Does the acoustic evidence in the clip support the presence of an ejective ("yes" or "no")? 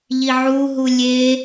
no